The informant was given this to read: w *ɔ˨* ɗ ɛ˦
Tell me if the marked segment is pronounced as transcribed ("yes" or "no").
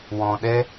no